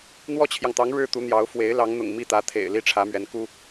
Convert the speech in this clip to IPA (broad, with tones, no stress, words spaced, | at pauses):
n̪wɔ˥t͡ɕʰjɑ˨ŋt̪ɑ˧˥ŋ ɻɻ̩˥t̪u˧˥n̪jɑ˧˥ʊ̯ fwe˧˥ɪ̯lɑ˧˥ŋ n̪ʊ̰˨˩ŋmi˥˩t̪ä˧˥ t̪ʰḛ˨˩ɪ̯ li˥˩ʈ͡ʂʰä˧˥mɥɛ˧˥nku˥